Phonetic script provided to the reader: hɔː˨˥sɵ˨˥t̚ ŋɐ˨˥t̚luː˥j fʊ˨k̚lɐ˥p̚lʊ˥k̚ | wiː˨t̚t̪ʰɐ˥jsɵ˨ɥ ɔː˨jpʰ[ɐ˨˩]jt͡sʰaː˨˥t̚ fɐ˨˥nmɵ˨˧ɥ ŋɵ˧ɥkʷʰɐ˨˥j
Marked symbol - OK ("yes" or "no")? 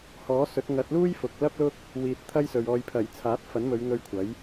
yes